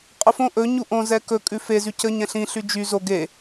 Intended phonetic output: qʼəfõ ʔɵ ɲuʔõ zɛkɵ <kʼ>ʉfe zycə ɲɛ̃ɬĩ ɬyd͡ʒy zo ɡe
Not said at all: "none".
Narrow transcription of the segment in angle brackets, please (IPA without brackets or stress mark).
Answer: kʼ